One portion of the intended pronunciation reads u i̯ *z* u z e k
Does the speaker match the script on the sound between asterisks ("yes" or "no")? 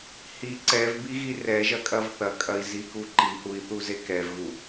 no